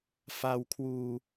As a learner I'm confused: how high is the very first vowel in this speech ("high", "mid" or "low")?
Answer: low